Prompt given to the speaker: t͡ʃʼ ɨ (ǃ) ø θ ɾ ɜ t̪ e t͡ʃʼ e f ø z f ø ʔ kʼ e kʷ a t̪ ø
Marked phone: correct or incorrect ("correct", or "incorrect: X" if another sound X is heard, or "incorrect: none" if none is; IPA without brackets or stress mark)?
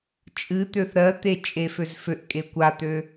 incorrect: t̪